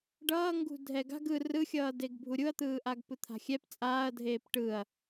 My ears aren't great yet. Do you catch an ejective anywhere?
yes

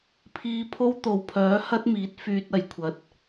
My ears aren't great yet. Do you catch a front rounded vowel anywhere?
yes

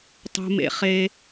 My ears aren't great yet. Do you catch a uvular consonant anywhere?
yes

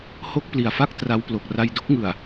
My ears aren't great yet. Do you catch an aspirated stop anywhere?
no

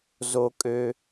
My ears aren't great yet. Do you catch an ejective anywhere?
yes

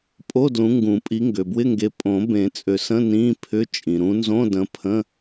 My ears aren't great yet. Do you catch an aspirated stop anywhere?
yes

